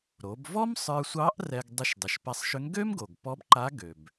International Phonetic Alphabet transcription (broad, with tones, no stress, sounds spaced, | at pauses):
ɾ o˩˧ b v ɔ˥ m sˤ ə˞˧ sʷ ɑ˧˥ ʔ r ɛ˧ ɡ dˤ ʏ˧ ʃ dˤ ʏ˩˧ ʃ p a˧ sˤ ʃ ʏ˧˥ ŋ ɡ ø˥ m ɡ o˩ ɡ p ɔ˧˥ b ǃ a˧˥ ɡ ø˩ b